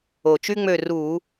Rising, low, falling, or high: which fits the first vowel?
low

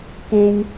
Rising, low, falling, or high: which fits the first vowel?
high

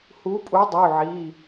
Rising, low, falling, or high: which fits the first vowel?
rising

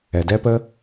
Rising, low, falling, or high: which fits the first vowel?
low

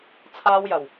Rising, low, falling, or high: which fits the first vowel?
high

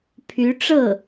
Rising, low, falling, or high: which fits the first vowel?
rising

